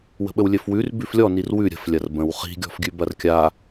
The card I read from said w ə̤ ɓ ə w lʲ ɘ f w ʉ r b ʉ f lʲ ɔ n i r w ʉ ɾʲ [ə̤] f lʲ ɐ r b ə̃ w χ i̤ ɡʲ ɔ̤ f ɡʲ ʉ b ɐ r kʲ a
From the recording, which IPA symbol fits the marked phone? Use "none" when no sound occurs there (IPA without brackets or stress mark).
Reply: ə̤